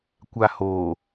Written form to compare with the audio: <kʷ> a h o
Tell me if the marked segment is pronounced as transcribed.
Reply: yes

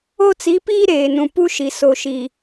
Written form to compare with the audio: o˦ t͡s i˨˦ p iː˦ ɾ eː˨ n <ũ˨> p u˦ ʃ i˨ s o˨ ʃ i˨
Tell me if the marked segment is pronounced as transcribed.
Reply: yes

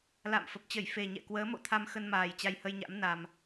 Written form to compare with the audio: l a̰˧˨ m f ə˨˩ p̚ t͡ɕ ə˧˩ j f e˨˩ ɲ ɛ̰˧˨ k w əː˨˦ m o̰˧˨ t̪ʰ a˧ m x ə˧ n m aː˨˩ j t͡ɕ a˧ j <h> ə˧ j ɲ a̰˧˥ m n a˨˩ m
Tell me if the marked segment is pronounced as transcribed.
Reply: yes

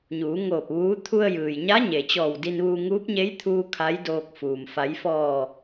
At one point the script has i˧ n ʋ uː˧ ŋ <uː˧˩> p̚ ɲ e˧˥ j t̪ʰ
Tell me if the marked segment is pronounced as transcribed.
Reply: no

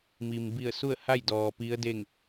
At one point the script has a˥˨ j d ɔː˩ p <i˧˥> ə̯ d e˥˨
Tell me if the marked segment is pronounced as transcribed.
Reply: yes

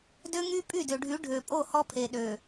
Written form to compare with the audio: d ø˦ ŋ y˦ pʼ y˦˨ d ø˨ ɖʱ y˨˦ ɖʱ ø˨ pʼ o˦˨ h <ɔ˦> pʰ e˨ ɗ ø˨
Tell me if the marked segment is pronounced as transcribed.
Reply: yes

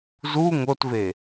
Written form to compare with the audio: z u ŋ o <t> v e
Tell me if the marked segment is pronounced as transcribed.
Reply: yes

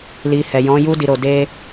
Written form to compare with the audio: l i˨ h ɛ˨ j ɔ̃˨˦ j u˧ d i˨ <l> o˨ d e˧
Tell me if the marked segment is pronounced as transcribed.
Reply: no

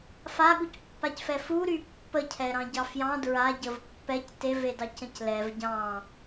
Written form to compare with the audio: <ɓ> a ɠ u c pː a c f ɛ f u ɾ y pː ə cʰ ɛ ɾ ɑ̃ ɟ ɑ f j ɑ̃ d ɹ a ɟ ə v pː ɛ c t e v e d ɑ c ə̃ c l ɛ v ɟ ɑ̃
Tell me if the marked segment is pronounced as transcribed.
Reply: no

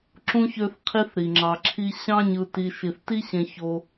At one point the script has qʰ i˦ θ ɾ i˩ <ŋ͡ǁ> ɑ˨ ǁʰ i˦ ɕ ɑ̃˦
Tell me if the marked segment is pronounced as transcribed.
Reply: yes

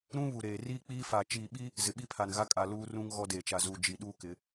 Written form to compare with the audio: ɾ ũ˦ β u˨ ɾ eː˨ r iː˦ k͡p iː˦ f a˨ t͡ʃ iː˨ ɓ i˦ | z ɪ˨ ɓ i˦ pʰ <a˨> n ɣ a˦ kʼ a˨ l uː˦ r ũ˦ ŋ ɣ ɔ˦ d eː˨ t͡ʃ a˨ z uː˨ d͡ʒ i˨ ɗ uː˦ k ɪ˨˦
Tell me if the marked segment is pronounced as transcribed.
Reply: yes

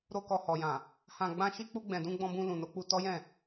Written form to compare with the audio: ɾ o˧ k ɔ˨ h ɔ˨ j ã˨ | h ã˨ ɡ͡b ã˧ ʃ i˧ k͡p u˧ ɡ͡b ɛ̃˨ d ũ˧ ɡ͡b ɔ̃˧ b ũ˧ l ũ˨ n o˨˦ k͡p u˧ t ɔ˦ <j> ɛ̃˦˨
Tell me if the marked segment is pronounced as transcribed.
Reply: yes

